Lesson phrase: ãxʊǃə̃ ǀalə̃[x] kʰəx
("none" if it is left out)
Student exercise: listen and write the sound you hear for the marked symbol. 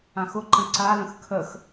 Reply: x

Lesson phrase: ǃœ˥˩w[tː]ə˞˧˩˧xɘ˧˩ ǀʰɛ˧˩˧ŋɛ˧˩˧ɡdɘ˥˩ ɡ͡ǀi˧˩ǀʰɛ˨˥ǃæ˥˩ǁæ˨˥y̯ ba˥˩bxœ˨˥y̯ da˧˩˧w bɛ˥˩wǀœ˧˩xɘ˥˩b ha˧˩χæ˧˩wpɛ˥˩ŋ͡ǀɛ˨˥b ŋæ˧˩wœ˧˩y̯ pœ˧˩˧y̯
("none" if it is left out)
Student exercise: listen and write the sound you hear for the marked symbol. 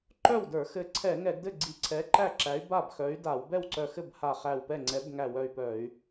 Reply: d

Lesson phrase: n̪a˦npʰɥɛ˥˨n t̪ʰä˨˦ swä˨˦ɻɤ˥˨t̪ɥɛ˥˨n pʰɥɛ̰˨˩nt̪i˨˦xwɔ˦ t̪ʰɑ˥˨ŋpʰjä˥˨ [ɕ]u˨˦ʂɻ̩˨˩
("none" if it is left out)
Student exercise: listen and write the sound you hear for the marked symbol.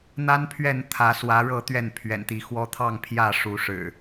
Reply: ʂ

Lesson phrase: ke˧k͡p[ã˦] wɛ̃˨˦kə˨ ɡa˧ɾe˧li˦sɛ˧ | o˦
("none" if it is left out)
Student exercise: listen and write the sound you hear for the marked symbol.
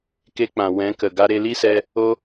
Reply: ã˨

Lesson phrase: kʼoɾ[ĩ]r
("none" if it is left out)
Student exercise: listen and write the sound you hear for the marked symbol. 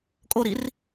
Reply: i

